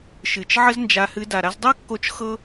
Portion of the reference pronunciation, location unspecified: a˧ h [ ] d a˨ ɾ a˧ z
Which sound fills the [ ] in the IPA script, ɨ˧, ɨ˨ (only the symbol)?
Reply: ɨ˧